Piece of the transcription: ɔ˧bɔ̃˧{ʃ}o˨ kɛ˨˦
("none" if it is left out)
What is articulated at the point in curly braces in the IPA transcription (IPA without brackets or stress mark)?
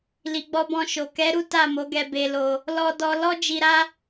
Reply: ʃ